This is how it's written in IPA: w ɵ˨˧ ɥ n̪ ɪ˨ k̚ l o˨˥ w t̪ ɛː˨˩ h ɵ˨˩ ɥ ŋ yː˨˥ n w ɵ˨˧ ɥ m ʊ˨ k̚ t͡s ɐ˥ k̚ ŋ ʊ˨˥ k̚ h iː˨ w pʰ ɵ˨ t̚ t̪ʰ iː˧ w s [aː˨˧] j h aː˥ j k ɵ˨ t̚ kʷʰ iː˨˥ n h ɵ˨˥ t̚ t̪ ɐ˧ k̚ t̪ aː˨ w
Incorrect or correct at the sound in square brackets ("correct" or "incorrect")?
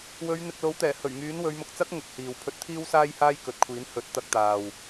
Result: incorrect